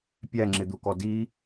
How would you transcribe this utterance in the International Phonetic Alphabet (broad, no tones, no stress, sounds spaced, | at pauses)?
pʲ æ ŋ͡ǁ ɪ d̪ u k ɔ d i